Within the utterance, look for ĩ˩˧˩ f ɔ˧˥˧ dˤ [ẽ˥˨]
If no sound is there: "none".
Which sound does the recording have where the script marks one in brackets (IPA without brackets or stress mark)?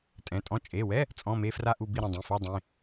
ẽ˩˧˩